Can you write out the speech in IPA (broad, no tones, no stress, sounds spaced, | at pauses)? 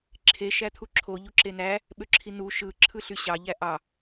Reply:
ǁʰ e ʃ æ t̪ʰ u ǁʰ o ʎ u ǁ e n æ | ɓ ø ǁʰ i n u ʃ ɯ ǁʰ ɯ ɬ y ɕ ɑ ʎ æ ʔ ɑ